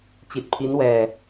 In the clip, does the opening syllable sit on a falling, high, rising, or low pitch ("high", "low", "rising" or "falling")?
low